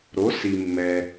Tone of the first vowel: rising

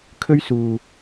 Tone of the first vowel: high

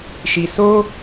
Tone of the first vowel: low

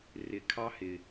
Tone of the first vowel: low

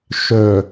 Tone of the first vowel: low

